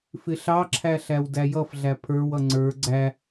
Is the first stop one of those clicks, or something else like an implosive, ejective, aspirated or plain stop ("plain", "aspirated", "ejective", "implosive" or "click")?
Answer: click